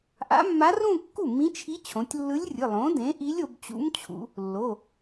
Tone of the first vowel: rising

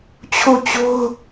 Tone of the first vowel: falling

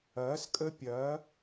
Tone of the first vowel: rising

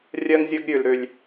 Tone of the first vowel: low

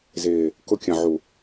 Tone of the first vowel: low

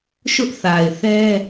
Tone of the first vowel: high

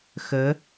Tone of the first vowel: rising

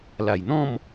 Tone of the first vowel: low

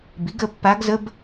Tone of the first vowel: rising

